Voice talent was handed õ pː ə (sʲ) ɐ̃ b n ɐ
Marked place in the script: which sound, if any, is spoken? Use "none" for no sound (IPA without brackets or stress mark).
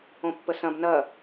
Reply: s